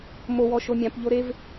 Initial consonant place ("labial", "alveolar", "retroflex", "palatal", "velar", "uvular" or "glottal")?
labial